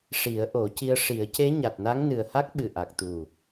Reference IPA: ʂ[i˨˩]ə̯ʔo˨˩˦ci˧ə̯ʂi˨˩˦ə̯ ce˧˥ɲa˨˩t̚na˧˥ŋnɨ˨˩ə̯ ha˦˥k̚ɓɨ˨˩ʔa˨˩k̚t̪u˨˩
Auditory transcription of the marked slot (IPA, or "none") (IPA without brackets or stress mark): i˨˩˦